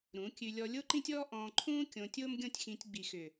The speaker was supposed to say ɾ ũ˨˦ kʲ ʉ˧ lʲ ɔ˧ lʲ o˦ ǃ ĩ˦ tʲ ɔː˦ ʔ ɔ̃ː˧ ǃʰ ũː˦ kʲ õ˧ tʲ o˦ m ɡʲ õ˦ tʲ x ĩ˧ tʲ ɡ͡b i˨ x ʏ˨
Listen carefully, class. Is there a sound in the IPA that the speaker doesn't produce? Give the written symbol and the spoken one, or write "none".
none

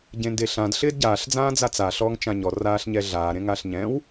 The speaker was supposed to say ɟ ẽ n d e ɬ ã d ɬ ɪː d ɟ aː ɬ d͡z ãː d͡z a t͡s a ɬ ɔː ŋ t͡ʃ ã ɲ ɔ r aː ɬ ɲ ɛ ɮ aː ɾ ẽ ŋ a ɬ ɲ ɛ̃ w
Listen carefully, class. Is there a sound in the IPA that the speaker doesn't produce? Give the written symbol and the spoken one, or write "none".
none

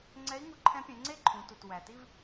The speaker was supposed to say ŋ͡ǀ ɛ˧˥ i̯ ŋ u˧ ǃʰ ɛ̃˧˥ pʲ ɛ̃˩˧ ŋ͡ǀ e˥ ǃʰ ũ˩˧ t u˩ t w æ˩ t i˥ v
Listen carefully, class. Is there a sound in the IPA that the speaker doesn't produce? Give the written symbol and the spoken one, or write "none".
none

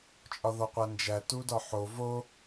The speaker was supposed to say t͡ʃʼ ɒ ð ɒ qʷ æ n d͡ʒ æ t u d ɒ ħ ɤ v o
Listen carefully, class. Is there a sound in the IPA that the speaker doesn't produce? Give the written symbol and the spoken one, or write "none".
ɤ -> o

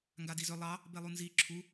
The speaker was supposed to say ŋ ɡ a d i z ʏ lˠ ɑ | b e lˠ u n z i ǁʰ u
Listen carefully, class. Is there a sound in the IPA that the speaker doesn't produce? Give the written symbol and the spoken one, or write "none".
none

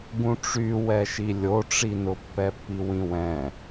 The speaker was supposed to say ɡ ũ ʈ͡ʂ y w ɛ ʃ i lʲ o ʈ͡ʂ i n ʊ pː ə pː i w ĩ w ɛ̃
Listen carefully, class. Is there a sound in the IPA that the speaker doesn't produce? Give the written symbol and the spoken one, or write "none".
ə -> ɛ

